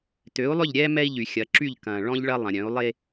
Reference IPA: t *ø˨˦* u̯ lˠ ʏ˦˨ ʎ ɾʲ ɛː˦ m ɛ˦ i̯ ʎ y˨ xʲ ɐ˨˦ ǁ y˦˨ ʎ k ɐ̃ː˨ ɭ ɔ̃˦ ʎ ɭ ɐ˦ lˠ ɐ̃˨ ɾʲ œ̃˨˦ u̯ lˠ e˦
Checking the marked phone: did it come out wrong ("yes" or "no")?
no